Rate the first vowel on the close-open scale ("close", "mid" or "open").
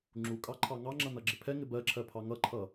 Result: close